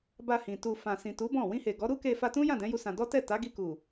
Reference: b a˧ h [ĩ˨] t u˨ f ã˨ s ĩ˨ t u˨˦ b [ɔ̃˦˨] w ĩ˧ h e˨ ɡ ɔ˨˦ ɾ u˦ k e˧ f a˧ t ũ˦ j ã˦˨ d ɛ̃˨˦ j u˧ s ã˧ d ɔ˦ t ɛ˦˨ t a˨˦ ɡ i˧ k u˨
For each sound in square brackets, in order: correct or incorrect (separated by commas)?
correct, correct